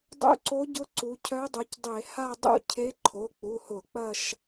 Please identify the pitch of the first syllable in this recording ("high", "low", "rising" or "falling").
rising